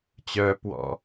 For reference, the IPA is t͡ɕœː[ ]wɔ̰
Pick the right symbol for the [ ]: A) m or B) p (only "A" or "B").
B